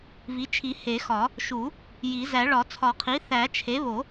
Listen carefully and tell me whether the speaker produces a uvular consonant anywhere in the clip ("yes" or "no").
yes